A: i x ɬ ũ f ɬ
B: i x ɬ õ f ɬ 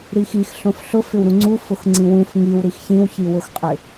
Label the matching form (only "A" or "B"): B